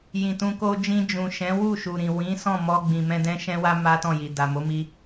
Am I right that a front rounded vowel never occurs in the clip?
yes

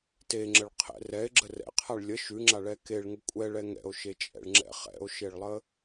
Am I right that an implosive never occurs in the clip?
yes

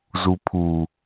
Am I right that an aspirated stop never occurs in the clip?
no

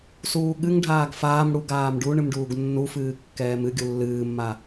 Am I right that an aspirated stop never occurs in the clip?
yes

